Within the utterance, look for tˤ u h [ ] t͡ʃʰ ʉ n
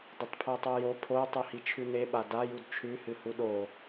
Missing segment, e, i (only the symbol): i